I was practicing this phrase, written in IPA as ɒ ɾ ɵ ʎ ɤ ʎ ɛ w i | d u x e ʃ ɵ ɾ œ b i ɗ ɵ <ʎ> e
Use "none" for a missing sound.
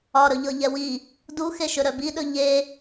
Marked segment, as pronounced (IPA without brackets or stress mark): ʎ